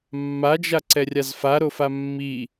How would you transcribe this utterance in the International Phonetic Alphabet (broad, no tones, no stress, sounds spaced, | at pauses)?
mː a d͡ʒ a ǀ ɛ rʲ a z f a ɾ o f a mː i